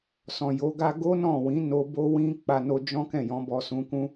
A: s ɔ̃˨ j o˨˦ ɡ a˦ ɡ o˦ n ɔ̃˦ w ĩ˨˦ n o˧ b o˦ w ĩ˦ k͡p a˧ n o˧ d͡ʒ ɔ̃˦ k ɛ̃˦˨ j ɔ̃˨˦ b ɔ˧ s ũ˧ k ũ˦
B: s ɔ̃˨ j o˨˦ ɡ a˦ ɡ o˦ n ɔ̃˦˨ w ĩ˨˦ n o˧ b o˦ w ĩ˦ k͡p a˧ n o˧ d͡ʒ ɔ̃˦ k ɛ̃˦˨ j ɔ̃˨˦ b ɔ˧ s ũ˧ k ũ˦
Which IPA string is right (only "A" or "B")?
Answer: B